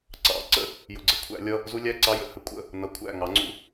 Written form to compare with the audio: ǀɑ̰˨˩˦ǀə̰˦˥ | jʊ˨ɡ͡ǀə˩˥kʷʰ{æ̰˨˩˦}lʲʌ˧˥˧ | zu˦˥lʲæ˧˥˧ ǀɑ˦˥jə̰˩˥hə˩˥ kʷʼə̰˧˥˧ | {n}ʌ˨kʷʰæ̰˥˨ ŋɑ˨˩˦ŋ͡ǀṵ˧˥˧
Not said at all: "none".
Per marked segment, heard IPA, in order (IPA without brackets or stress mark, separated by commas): æ̰˨˩˦, n